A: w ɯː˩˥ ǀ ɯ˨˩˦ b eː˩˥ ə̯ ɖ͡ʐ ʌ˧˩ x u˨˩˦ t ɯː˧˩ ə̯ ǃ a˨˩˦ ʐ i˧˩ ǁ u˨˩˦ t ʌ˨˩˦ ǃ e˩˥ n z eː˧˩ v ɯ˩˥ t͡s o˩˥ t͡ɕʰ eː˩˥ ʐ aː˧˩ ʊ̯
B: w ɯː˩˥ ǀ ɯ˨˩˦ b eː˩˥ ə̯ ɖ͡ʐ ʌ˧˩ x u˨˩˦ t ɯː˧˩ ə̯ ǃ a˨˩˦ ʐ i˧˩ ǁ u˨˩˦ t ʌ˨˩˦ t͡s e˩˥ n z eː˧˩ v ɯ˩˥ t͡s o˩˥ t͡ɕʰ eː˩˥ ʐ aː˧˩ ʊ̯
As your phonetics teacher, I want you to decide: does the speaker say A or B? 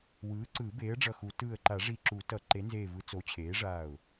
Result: A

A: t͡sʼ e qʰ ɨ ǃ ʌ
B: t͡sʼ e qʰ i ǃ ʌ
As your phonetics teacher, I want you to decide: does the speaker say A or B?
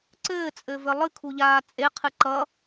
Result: A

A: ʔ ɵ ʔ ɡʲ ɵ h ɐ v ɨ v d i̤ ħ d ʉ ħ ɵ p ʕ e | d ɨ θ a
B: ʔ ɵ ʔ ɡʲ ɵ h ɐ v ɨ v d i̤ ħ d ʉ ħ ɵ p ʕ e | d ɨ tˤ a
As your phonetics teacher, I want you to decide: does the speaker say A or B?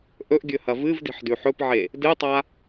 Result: B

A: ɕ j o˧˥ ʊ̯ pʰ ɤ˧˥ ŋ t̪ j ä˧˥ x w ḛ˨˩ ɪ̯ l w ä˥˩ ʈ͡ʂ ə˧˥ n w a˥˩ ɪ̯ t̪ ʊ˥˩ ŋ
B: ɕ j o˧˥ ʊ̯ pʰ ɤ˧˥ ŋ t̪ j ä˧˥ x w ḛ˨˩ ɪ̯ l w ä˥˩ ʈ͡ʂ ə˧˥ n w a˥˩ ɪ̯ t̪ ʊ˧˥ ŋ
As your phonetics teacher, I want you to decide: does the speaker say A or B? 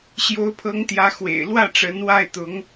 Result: B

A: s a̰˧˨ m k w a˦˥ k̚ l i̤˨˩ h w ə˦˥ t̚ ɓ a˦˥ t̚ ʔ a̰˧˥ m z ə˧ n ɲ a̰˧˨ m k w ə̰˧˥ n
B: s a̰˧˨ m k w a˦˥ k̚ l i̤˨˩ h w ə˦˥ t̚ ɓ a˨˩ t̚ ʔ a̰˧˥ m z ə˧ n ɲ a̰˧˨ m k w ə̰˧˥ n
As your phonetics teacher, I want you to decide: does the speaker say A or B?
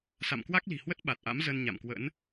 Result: B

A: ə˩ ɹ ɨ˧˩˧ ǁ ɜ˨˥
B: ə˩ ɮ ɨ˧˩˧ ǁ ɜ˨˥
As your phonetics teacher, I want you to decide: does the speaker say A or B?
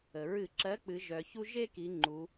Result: A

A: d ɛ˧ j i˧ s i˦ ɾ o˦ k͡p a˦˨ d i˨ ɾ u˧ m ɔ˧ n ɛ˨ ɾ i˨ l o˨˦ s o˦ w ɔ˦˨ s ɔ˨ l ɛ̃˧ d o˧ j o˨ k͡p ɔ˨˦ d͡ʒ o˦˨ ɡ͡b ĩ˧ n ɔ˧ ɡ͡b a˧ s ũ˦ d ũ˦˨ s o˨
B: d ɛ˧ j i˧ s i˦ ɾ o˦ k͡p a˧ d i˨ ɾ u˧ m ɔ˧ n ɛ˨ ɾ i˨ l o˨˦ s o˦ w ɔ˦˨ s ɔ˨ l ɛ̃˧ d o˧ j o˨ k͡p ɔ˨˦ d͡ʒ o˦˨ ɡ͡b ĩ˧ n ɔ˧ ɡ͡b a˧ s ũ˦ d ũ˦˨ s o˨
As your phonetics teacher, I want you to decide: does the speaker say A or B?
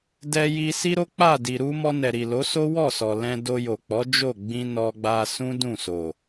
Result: A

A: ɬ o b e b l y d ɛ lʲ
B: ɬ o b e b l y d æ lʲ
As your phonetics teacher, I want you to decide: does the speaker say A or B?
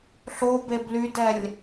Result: A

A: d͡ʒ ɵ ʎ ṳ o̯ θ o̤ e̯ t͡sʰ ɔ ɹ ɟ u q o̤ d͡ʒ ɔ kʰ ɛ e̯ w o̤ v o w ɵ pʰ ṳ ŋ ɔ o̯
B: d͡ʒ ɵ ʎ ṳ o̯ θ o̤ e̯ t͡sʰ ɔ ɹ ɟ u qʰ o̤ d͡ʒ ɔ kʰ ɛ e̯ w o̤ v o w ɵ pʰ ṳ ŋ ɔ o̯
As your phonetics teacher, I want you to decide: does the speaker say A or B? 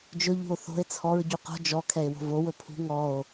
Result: A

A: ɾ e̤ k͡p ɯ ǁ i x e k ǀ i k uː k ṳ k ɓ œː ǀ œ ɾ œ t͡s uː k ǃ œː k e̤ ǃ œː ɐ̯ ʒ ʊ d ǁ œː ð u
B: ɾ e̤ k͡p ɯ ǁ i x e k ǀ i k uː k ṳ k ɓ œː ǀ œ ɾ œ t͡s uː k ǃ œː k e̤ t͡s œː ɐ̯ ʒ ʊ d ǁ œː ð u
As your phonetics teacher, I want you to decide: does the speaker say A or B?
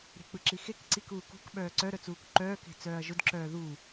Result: B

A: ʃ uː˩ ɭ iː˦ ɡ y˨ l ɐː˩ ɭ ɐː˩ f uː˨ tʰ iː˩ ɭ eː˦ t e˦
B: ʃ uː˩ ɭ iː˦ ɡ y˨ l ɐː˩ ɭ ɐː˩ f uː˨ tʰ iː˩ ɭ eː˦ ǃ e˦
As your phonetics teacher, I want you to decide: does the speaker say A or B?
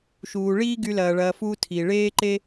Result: B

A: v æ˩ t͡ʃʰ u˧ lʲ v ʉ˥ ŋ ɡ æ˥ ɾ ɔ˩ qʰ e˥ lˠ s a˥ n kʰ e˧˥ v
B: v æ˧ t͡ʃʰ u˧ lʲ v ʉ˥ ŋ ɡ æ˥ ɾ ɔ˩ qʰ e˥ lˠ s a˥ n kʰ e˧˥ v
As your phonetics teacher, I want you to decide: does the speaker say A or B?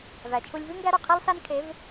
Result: A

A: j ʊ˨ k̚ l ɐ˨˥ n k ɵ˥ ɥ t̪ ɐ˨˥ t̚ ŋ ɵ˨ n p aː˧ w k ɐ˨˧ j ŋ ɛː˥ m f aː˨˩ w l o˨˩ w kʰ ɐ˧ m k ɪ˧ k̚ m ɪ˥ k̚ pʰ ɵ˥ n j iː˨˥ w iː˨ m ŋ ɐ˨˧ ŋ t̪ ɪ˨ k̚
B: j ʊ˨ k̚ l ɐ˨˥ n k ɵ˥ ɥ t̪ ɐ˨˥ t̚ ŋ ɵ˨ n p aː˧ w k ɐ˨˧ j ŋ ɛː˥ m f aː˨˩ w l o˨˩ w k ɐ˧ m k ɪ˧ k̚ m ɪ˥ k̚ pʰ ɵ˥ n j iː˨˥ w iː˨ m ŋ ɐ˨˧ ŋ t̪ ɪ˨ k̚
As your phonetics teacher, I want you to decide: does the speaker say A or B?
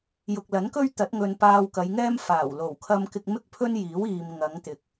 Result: A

